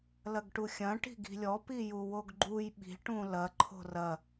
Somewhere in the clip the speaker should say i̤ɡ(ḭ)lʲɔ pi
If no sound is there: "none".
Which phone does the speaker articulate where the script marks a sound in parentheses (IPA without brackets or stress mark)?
i̤